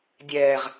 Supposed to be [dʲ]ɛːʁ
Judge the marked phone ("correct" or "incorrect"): correct